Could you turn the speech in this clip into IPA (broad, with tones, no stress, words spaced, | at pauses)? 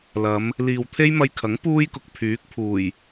lɐ˨˧m | liː˨wt̪ʰe˥j mɐ˧jkʰɐ˨˥ŋ puː˥jkʊ˨k̚ pʰyː˨˥k̚pʰuː˨˩j